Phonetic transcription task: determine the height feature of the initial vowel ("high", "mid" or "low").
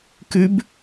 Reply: high